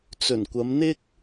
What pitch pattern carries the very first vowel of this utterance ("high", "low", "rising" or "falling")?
low